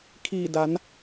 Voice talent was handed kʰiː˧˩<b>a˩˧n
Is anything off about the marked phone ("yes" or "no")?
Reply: yes